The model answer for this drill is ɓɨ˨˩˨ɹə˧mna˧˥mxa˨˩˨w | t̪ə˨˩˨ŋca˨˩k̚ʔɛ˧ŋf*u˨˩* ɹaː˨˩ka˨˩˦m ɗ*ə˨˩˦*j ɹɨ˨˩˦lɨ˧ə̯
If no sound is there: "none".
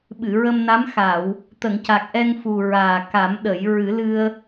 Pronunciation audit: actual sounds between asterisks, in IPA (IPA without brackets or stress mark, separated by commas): u˨˩, ə˨˩˦